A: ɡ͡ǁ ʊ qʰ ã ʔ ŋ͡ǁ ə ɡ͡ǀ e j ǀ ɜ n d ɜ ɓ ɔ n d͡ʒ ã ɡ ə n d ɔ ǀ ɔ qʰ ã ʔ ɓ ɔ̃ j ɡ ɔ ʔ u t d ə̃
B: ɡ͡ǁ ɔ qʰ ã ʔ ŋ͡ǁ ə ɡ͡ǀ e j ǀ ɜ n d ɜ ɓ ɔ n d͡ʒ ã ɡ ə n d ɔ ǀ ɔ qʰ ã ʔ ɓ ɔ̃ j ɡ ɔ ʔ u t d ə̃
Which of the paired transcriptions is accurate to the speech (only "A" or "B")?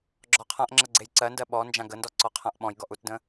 B